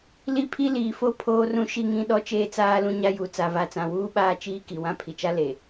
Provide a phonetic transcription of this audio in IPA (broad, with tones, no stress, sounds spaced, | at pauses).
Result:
l i˦˨ pʰ i˦ l iː˨ f o˦ pʰ oː˦ r ũ˦ ʃ i˦ ŋ ĩ˦ ɗ ɔ˦ t͡ʃ eː˦ t͡s aː˦ l ũ˦ ɲ a˦ j u˨ t͡s a˨ v a˨ t͡s ã˨ w uː˦ ɓ aː˦ t͡ʃ iː˦ k i˨ w ã˦ pʰ i˨ t͡ʃ a˦ l e˨